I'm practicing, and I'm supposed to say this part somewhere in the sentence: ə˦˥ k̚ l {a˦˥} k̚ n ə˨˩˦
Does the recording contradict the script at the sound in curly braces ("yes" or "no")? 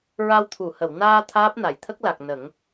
yes